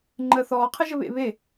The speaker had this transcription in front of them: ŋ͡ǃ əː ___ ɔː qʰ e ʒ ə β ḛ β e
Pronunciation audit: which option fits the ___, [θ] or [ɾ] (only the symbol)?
θ